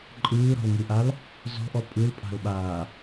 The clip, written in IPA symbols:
ǃʼɯːɾɔ̤lŋɯʔal | zɔ̤ʔɔ pʼɯlpʼa̤lɓaː

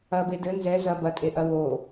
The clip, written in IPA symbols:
ɐbe dɘ nzɛ zɐ bɐtʼeʔɐ wo

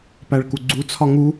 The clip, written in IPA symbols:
pæɭkuɡ͡ǀu t͡sʰɒŋu

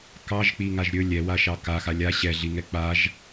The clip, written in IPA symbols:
kɑʒk͡piŋaʒ ɾʲɵ lʲɛwaʃɑ kaxa lʲa ɕɛɮiŋɛ k͡paʒ

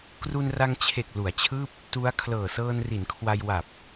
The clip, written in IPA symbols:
kru˧nra˧ŋt͡ɕʰe˨˩k̚ lu˩˦a̯t͡ɕʰɯː˥˩p̚ | tu˦˥a̯ kʰlɤː˨˩sɤː˧nri˩˦nkʰwa˧j wa˨˩p̚

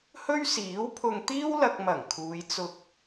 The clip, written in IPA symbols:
hɵ˥ɥsiː˨˥wpʰʊ˧ŋ t̪iː˥wlɐ˧k̚mɐ˨˩ŋ kʰuː˨˧j t͡sʊ˧k̚

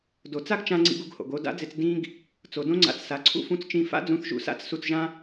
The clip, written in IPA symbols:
do˩t͡sa˥ɡt͡ʃã˧ ŋ͡ǀḭ˧ɡu˧ɡho̰˩ɡo˧ da̰˥d͡zɪ˧t͡s dĩ˥ɡ | t͡so˩dõ˥ŋ͡ǀa̰˧t͡ssa˩ ǀʰṵ˥fũ˧t͡st͡ʃĩ˧ fa̰˥ d͡zũ˧θ ʒṵ˧sa̰˥t͡s su˧t͡sʒã˥

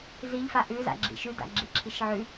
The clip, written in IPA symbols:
ziʎfa ʔʉza̰ ɡ͡ǁḭʃʉda̰ ɡ͡ǁiǁʰiʃʕʉ

